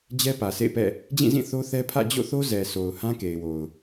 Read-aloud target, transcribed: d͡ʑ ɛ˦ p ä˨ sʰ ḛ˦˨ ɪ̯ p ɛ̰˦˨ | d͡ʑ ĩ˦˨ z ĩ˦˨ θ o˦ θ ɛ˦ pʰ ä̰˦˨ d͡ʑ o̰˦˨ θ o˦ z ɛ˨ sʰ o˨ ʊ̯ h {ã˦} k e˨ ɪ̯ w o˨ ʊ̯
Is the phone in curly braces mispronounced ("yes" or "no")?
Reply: no